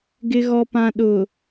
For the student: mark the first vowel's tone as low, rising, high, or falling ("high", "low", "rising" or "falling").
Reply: low